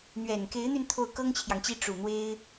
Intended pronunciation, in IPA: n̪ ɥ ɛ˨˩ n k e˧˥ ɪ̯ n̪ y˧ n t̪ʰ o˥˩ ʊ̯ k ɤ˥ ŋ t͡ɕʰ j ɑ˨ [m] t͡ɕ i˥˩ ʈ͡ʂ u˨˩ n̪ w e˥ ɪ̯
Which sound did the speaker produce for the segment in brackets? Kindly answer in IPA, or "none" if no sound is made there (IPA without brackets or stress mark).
ŋ